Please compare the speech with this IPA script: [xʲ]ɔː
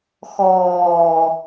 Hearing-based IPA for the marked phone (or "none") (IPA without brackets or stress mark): x